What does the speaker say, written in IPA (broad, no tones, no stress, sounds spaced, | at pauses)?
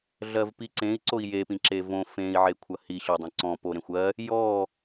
ɮ ɜ v p i ǀ ẽ i̯ ǀ o i̯ j e p ĩ ǁ e v õ f ẽ i̯ ʕ e kʷʰ ɐ h i ɕ o dˤ ɐ̃ ǀ ɔ̃ p o ɾ ẽ xʷ ɜ | j ɔ